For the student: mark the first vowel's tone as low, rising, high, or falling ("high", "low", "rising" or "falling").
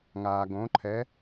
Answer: low